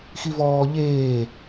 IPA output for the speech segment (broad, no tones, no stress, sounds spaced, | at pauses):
x i v ɔː ʎ eː